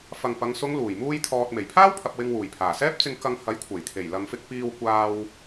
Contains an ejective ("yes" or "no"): no